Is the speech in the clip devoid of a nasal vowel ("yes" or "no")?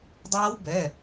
yes